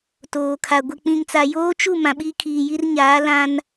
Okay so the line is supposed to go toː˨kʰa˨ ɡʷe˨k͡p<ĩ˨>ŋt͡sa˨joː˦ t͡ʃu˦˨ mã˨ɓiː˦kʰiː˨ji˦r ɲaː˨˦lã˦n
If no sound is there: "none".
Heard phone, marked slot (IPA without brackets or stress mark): ĩ˨